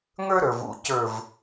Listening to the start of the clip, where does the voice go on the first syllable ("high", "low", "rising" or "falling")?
high